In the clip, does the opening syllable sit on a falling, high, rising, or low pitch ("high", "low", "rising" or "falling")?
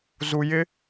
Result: low